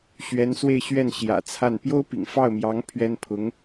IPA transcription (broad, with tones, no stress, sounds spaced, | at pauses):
ɕ ɥ ɛ˧˥ n s w e˥˧ ɪ̯ ɕ ɥ ɛ˥˩ n ɕ j ä̰˨˩ t͡sʰ a˥˩ n p j o˥ ʊ̯ p ḭ˨˩ ŋ f ɑ˥˩ ʊ̯ m j ɑ˧˥ ŋ pʰ ɥ ɛ˥ n pʰ ʊ˧˥ ŋ